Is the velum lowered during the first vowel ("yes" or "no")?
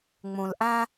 yes